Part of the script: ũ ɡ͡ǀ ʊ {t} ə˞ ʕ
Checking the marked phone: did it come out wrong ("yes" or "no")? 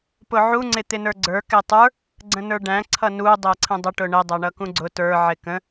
no